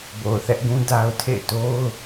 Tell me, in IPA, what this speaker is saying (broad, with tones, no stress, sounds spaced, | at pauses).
b o˨ ʊ̯ θ ɛ˦ ʔ ɡ ũ˦ d a˦ ʊ̯ tʰ ḛ˦˨ ɪ̯ t o˦ ʊ̯